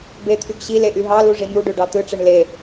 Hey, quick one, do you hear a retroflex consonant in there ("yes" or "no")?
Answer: yes